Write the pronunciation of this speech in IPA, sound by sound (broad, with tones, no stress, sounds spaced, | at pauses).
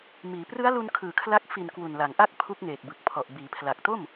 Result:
m iː˩˦ p r ɯ˦˥ a̯ l u˧ n kʰ ɯː˨˩ kʰ l a˦˥ k̚ f i˨˩ n k w u˨˩ n l a˩˦ ŋ ʔ a˥˩ k̚ pʰ u˦˥ k̚ ŋ eː˨˩ k̚ b ɯ˨˩ k̚ pʰ ɔ˨˩ ʔ b iː˩˦ pʰ l a˨˩ k̚ t o˥˩ m